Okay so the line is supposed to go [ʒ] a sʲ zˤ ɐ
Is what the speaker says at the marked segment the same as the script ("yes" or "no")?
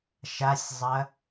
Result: no